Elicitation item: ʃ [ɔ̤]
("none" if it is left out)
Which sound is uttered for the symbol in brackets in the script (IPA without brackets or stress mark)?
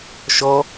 ɔ